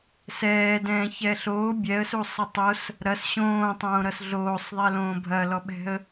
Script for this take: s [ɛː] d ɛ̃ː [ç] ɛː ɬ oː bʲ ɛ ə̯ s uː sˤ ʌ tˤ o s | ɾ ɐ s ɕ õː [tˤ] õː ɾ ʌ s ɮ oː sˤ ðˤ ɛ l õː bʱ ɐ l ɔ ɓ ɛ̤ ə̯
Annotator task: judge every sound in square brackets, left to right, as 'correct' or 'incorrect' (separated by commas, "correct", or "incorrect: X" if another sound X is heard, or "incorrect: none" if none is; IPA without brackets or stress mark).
correct, correct, correct